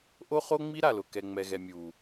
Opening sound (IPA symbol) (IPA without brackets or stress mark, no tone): ʔ